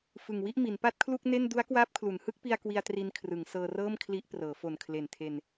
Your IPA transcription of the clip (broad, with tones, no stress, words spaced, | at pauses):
fɯ˨˩ŋwi˥˩ʔmi˩˦n pa˥˩t̚kʰlu˥˩k̚ ne˥˩n du˦˥a̯ kwaː˦˥p̚kʰlu˩˦n hɯ˦˥k̚pi˧a̯ kwi˧a̯tri˧nkʰrɯ˩˦ŋ sɤː˧rɤː˥˩mkʰli˦˥ʔprɤː˩˦ fo˨˩nkʰle˨˩ntʰe˧n